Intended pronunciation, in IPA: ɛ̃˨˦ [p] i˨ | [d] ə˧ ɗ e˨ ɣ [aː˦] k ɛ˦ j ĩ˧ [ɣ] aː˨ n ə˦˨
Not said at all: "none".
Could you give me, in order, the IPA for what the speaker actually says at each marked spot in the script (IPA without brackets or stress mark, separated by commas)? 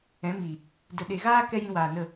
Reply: m, d, aː˦, w